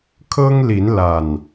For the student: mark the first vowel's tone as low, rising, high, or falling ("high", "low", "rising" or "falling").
high